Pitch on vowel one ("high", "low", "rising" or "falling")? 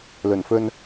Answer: low